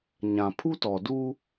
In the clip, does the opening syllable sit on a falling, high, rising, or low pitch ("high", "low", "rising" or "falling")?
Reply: low